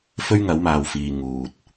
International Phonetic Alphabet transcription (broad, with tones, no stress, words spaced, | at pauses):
fɵ˥ɥ ŋɐ˨˥wmaː˨wfiː˨ ŋuː˨t̚